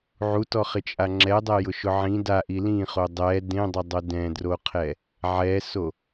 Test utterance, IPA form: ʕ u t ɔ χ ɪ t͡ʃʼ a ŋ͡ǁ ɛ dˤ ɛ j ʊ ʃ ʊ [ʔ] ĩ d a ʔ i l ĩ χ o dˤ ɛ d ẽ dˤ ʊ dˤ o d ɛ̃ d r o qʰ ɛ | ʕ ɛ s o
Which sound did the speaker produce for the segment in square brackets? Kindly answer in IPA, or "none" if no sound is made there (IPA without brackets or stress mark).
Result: ʕ